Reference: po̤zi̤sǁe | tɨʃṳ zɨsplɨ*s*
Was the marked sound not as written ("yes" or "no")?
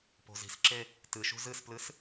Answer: no